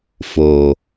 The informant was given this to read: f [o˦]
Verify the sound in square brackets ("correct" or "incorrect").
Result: incorrect